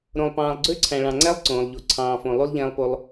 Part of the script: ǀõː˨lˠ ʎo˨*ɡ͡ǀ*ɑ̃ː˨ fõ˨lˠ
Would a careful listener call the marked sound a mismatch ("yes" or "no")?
yes